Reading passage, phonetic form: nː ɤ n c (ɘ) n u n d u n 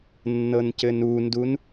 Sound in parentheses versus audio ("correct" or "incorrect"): correct